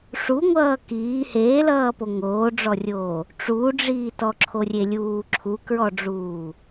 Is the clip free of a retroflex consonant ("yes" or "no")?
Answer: no